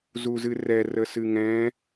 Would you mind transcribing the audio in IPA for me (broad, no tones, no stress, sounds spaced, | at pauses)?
z u z ɨ r ɛ r ə s ɨ ŋ ɛ̃